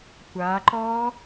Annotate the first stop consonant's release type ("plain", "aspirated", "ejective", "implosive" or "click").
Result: plain